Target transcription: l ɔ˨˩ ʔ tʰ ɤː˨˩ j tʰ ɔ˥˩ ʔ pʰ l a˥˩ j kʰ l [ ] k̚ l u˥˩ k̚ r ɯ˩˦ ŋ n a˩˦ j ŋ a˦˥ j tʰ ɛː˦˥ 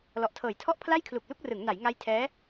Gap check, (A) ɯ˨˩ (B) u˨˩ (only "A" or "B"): B